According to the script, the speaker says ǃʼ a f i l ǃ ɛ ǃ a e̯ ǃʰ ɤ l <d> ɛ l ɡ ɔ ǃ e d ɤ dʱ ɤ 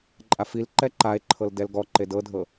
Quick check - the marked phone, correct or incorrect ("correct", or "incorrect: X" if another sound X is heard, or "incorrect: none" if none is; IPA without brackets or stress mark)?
correct